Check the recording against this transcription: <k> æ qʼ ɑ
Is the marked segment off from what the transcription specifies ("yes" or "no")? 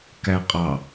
no